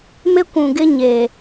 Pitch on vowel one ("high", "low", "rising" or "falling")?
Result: high